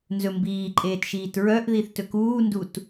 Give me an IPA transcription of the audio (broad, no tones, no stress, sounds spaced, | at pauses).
n z ɵ m b iː ǃʼ eː t ʃ iː t ɹ œ ʔ ð i θ t ɵ k uː n d u t